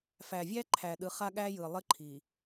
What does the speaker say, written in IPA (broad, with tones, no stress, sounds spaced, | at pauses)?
f æ˨ vʲ æ˦ ǃʰ æ˨ ɗ ɯ˨˦ χ a˦ ɠ æ˦ j ɯ˨ lˠ ə˦ ǃʰ i˨